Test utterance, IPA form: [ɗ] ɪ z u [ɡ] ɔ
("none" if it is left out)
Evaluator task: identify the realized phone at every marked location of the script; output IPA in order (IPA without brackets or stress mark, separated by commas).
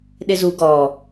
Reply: ɗ, ɡ